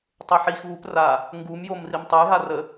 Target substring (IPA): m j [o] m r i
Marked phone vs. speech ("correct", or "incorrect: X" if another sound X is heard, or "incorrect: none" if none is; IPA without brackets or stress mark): correct